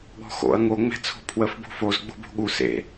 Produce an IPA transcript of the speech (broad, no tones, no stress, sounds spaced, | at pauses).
ɠ ɔ̤ x o̰ ɐ̯ ŋ o ŋ͡m ɛ̤ t͡sʰ o̤ pʰ w ə f b o̤ f o z ɡ͡b o̤ b o̤ ɠ u s ḛ